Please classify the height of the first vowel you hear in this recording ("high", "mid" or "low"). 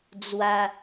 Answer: low